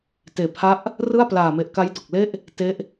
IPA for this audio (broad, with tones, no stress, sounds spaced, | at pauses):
t eː˨˩ pʰ a˥˩ ʔ | r ɯ˥˩ a̯ p l aː˨˩ m e˨˩ ʔ k a˦˥ j d o˨˩ k̚ l e˥˩ ʔ | t e˦˥ ʔ